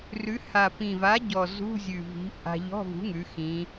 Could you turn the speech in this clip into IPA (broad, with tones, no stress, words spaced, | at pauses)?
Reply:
rʉ˨˥ ha˨˩pĩ˨˩va˨˥ ɟɔ˨˩zṳ˧˥˧ zʲʉ˨˩vi̤˨˥ ʔa̤˧ ʎɔ̤˧˥˧vṳ˨˥ŋʉ˩˧ xĩ˩˧